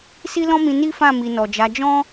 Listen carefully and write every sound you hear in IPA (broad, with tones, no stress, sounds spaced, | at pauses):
s i˦ l ɔ̃˦ m ĩ˧ n i˦ f ã˦˨ m i˨ n ɔ˨ d͡ʒ a˨˦ d͡ʒ ɔ̃˦